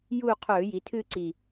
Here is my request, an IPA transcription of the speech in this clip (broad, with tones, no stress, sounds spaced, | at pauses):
j uː˦˨ qʰ ɵː˧˩˧ j i˩˧ tʰ ɨ˦˨ ǀ i˦˨